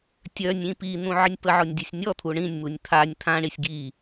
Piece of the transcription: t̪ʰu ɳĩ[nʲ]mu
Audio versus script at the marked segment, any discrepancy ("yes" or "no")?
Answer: no